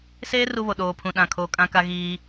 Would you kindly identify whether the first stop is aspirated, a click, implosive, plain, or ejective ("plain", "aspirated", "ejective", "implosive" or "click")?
implosive